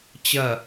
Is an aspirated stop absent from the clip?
yes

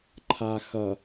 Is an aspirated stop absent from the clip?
no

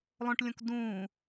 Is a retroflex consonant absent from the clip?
no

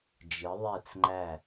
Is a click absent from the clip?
no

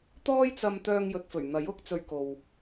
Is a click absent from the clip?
yes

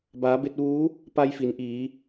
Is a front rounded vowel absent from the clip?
yes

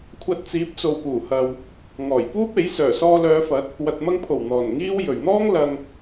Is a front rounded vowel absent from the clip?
no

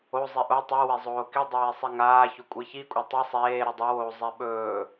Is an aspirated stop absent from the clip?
yes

